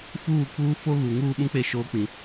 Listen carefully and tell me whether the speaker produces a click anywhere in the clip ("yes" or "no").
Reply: no